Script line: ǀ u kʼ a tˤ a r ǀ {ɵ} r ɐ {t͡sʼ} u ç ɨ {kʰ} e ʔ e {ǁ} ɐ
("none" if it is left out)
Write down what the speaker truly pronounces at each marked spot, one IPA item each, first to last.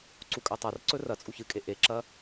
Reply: ɵ, t͡sʼ, kʼ, ǁ

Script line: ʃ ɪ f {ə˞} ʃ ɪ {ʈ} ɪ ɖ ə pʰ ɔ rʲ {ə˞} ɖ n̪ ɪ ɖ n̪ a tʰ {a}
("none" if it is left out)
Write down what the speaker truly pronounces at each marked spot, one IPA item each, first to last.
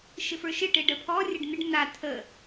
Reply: ə˞, ʈ, ə, ə

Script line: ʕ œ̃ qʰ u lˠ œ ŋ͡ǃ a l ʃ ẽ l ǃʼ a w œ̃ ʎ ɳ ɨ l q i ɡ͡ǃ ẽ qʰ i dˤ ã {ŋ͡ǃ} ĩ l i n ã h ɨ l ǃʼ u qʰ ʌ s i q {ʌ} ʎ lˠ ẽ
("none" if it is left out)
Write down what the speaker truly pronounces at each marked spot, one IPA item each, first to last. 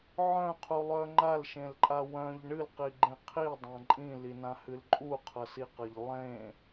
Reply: ǃʼ, ʌ

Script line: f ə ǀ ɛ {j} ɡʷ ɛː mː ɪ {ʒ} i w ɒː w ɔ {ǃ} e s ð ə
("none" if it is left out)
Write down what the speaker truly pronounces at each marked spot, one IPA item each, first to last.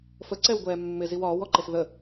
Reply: w, z, ǃ

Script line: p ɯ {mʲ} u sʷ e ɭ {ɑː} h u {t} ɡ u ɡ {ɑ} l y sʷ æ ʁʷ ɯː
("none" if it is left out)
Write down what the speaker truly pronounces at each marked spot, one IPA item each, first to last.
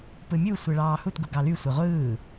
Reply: mʲ, ɑː, t, ɑ

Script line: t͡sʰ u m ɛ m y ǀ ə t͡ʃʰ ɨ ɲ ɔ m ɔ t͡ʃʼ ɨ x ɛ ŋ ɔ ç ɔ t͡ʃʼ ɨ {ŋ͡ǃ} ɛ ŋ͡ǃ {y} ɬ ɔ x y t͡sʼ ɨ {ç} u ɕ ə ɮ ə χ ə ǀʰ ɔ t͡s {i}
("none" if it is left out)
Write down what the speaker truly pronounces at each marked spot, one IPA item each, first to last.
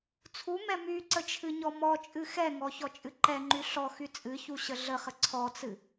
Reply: ǃ, y, ç, ɨ

